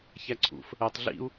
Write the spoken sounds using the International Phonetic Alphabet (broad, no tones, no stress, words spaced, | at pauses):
çæǀʰṵf | ɜtˤ ɮḭu̯